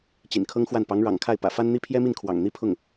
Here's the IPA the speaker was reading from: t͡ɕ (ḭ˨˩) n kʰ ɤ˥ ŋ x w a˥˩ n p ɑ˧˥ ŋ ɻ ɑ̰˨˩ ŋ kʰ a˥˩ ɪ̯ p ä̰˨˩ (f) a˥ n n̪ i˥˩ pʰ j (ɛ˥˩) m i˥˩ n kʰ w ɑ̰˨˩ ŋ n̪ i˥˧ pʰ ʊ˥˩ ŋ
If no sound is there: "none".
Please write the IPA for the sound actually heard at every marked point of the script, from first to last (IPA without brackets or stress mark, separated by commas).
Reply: ḭ˨˩, f, ɛ˥